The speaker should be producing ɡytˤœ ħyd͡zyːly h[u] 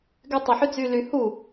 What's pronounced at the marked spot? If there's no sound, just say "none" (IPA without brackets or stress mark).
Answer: u